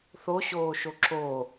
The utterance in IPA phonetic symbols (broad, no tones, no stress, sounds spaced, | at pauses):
θ o ɕ oː ʃ o ǁ o